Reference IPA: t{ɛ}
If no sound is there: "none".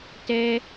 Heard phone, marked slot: ɛ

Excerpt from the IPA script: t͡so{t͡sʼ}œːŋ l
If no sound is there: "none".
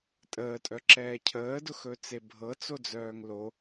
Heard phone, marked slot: d͡z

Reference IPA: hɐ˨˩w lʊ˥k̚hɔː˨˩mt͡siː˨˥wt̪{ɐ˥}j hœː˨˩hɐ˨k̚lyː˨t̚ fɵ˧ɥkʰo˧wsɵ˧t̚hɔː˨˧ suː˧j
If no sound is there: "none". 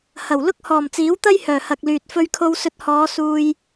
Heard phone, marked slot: ɐ˥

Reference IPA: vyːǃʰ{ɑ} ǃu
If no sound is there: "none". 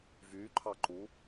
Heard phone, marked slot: ɑ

